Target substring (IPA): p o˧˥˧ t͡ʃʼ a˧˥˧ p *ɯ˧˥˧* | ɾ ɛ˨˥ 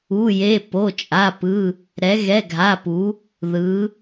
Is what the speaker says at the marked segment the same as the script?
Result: yes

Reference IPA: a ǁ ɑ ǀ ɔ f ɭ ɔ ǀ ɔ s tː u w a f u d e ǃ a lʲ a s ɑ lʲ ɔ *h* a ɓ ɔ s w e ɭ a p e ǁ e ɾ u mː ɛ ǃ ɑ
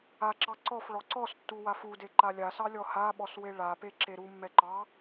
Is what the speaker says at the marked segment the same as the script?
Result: yes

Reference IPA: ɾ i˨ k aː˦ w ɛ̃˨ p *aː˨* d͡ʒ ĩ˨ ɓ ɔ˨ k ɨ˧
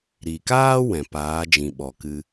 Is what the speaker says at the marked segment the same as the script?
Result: no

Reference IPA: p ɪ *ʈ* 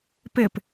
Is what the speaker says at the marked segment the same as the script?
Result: no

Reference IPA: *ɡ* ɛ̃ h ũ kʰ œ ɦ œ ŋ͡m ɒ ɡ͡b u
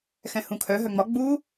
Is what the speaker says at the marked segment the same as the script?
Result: no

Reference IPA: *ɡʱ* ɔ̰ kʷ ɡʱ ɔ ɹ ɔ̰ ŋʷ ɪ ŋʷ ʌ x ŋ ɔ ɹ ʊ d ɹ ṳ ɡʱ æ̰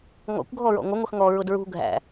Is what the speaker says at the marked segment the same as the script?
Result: no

